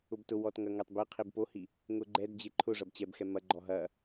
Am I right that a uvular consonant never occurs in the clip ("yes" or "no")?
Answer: no